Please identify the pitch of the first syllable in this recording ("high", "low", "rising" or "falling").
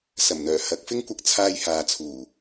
low